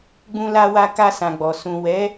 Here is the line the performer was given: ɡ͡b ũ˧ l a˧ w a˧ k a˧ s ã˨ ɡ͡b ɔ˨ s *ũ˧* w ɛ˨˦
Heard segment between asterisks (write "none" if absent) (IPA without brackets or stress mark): ũ˨